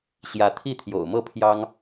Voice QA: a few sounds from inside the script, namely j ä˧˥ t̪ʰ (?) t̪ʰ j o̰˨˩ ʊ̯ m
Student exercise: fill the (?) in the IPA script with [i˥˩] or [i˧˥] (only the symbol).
i˥˩